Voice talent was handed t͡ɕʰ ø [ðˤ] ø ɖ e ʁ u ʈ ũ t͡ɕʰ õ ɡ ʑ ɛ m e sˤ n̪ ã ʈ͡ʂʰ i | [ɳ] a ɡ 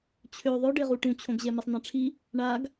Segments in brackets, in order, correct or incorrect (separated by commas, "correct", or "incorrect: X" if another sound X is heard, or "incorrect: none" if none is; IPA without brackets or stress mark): correct, correct